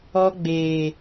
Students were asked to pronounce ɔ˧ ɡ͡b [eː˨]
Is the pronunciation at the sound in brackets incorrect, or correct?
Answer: correct